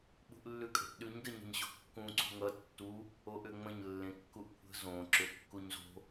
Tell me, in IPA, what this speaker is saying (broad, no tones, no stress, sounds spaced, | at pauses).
ɓ ṳ ʔ lː ʉ kʼ ə̤ ʔ ɗ ʉ ɲ d ə ɲ ə̤ ɲ ɕ o̤ kː ũ ǀ ṳ ŋ ʌ tː u | o ʔ ʏ ŋ͡m ə̃ ɲ lː ẽ kː u ʔ kʷʰ ə̤ z õ ǁ ʏ kː u ɲ z o̤